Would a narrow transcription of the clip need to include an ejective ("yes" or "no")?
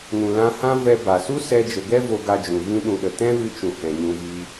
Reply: no